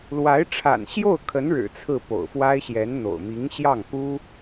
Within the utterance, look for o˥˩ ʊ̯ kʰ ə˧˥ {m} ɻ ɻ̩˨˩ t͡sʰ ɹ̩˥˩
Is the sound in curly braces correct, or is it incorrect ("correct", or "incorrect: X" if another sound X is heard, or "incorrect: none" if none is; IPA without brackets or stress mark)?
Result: incorrect: n